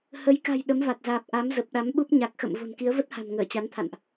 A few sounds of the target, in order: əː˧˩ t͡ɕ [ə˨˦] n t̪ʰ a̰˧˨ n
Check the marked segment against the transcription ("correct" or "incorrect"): incorrect